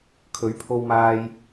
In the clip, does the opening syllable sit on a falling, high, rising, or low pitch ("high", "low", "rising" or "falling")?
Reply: rising